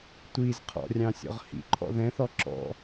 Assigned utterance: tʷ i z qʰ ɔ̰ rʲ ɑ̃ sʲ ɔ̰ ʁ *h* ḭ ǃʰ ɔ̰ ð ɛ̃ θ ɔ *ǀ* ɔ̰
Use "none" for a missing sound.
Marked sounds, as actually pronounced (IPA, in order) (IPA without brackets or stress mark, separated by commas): h, ǁ